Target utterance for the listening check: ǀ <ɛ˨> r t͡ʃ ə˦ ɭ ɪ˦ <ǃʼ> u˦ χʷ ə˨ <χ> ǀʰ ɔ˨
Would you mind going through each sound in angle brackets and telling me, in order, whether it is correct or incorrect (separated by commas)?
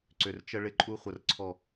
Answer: incorrect, correct, incorrect